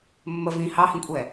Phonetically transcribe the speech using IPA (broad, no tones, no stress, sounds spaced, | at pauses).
mː ə v ĩ h ɑ h ĩ kʷʼ ɛː